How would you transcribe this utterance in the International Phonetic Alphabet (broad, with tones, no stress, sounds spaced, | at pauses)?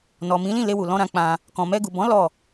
n ɔ˨ m ĩ˨˦ l ĩ˦˨ l e˧ w u˨ l ɔ̃˧ ɾ ã˧ k͡p ã˧ | k ɔ̃˨ m ɛ˧ ɡ u˨ b ɔ̃˨˦ l ɔ˦˨